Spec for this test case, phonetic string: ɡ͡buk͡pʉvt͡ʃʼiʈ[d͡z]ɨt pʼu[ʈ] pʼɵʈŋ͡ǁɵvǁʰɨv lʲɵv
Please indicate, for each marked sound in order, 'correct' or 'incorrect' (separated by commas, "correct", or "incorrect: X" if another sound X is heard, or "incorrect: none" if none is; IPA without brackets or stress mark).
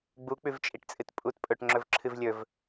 incorrect: t͡sʼ, incorrect: t